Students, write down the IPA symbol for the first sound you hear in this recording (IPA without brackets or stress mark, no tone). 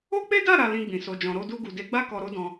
o